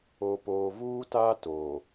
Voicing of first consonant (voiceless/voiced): voiceless